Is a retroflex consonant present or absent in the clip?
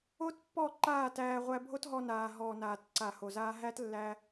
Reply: absent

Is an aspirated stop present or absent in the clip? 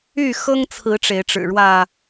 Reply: present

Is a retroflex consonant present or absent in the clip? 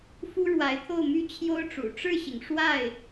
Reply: present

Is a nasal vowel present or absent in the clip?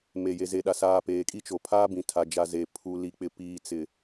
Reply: present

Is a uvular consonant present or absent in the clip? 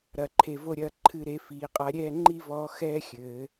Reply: present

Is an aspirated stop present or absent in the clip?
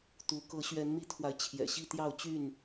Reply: present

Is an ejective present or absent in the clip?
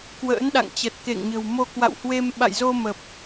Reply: absent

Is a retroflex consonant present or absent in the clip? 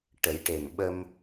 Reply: present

